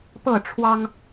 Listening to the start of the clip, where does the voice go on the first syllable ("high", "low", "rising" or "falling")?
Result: falling